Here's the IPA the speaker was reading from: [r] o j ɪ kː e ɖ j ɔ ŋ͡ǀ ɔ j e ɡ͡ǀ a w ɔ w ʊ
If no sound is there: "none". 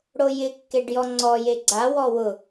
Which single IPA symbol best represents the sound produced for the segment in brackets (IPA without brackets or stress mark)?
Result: ɽ